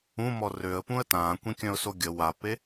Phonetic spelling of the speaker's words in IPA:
ũ m ɔ r ø ə̯ p ũ ə̯ t ãː kʷ ĩ kʲ œ̃ ʊ̯ s o ɡʲ ə w a p e

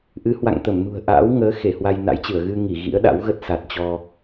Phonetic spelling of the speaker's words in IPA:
ʔ ɨ˨˦ h w a̰˧˨ ŋ t̪ ə˧˩ m n ṳ˨˩ ə̯ ʔ a̰ː˧˥ w ŋ əː˨˦ x e˧˩ h w a˧ j n a̰˧˥ j t͡ɕ ɨ˧˩ ə̯ ɣ ɨ˧ ŋ i˧˩ ɣ ḭ˧˥ ə̯ ɗ a̰˧˥ w ɣ ə˦˥ t̚ s a˨˩ t̚ t͡ɕ ɔ˧

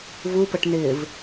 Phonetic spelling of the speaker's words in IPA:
v u p ə ʈ n̪ ɪː v

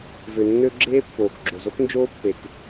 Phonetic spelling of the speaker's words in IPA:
v ø˨ nː ø˦ ɡ͡ǁ eː˦ pː oː˨ k ɡ͡ǁ o˨ z o˦ k n d͡ʒ oː˦ pː e˨ k

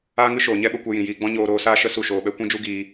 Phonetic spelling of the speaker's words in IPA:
aː˦ ŋ ɨ˦ ʃ oː˨ ɲ ɛ˦ ɓ ə˧ kʷ ɛ˧ j ĩ˨ j iː˧ ɡ͡b ɔ̃˦ ɲ oː˧ ɾ oː˧ s aː˦ ʃ ə˦ s u˦˨ ʃ oː˧ ɓ ɛ˦ kʷ ĩ˦ d͡ʒ u˦ ɡ iː˧

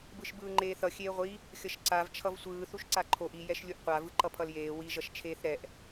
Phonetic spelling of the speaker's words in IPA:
b ɯ ʃ b ɯː ŋ͡ǃ eː θ ʌ xʲ eː ʁʷ i | xʲ ʌ ʃ ǀ a v t͡ʃʰ ʌ v sʷ ɯː θ u ʃ ǀ a ǃʰ o ʔ i j ɛ ʃ lʲ u ʔ qʷ a v ɯ ǃ ʌ pʰ ʌ l j eː w i ʒ ʌ ʃ t͡ʃʰ eː θ ɾ ɛ ʔ

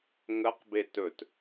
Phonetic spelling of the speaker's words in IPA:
ŋ ə q b e t ɵ t

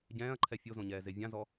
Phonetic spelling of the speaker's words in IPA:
ɟ ɛ̃ː ɐ̯ ǃʰ ɛ fʲ o z õ ɲ ɛː z e vʲ ã z ɔ

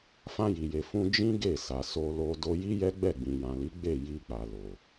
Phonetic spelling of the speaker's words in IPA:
f ã˧ j i˨ j e˨ f ũ˧ d͡ʒ ĩ˦ ɡ e˦˨ s a˨ s o˧ l o˧ d o˧ j i˦ j ɛ˦ ɡ͡b ɛ˦˨ ɡ͡b ĩ˨ j ã˨ l i˨˦ ɡ͡b e˦˨ j i˧ k͡p a˨ l o˨

